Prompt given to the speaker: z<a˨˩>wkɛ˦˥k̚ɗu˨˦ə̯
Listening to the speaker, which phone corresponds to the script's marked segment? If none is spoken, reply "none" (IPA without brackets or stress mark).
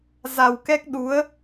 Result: a˨˩